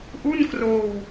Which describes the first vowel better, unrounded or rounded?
rounded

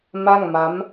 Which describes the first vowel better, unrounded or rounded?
unrounded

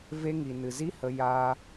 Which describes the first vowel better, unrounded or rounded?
unrounded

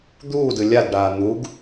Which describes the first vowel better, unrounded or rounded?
rounded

